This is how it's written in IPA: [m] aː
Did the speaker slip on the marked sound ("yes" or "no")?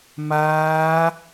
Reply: no